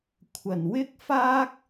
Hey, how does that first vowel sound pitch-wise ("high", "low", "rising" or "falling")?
low